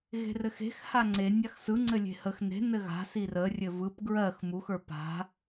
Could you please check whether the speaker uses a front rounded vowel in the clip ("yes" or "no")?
no